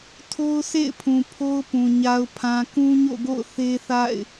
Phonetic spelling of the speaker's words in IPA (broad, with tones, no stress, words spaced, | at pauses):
tʰo˦ʊ̯sʰḛ˦˨ɪ̯pʰũ˨ pʰo˦ʊ̯pũ˨ ɲa˨ʊ̯pʰã˨ kũ˦ɲo̰˦˨ɡo̰˦˨ʊ̯ θe˦θa̰˦˨ɪ̯